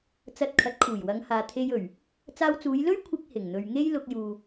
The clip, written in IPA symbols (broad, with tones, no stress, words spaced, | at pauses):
t͡sɐ˧t̚kʰɐ˨˥t̚kʰuː˨˩j wɐ˨˧ŋhaː˨ t̪ʰe˧jɵ˨˩ɥ | t͡saː˧wt͡suː˨˧jlɵ˥ɥ kʷʰɪ˥k̚ hɪ˨˩ŋn̪ɵ˨ɥŋe˥j lʊ˧k̚juː˨